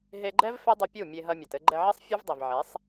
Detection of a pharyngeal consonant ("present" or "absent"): present